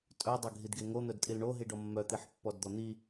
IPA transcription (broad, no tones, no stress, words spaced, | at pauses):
tʼœ dˤœɡʱidɡeŋo n̪œdtʼilɳo ɦiɖɔmːœ t̪iħpːɔdd̪ɔn̪i